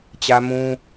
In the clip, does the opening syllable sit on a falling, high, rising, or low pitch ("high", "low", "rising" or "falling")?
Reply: high